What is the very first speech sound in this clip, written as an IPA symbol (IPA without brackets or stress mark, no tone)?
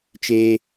t͡ʃ